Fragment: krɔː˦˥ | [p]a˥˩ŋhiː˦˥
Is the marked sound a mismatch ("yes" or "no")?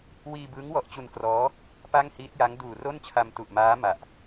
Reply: no